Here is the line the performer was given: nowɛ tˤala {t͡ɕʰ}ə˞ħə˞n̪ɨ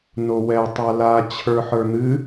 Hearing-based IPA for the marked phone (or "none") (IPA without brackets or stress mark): t͡ɕʰ